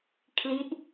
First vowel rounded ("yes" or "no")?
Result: no